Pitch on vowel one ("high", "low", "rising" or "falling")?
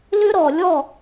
high